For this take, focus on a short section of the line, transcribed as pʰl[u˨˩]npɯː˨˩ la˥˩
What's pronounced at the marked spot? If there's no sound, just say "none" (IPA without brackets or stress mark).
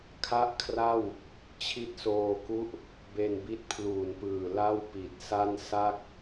uː˨˩